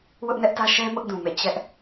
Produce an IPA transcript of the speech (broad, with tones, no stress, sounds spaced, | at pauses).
w ʊ˦ ʔ n ɛ˦ ʔ t ä˦ ʃ ɛ˦ m ʊ˦ ʔ d ũ˨ m ḛ˦˨ t͡ɕ ɛ˦ ʔ